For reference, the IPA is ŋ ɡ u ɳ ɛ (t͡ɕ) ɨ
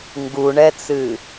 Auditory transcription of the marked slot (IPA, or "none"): t͡s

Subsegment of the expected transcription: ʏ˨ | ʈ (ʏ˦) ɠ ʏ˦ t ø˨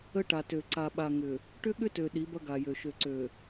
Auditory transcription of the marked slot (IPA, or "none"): ʏ˦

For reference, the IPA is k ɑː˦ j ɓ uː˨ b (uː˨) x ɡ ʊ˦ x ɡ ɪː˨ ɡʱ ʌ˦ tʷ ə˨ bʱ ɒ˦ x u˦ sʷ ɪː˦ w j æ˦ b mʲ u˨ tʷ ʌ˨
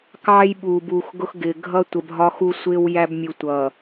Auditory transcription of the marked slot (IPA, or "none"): uː˨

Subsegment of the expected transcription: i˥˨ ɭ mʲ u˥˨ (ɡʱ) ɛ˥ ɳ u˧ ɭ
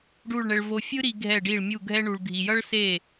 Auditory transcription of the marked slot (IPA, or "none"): ɡʱ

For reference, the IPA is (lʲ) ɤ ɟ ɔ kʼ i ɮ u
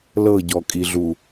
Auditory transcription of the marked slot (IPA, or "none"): l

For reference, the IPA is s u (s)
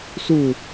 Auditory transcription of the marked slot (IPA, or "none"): none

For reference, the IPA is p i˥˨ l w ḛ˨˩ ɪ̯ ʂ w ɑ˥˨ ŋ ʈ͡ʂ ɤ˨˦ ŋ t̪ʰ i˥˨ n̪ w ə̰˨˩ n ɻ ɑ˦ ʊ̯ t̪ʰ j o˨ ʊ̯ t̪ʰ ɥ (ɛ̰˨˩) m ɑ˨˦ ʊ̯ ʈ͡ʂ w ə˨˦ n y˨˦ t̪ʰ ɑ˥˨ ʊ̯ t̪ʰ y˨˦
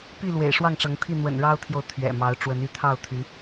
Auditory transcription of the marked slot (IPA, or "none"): ɛ̰˨˩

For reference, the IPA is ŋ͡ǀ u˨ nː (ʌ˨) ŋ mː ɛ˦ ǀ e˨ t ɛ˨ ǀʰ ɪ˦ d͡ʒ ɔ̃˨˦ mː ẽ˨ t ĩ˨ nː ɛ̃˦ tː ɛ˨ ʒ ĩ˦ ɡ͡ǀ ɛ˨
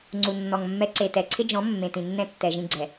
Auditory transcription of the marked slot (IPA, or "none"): ɔ˨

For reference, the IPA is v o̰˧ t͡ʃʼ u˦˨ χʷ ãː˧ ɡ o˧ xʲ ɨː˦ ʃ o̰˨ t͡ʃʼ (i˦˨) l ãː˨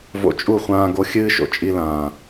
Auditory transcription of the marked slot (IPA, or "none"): i˧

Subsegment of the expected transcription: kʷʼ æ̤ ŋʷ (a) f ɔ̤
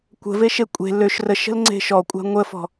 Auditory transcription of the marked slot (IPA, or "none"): ə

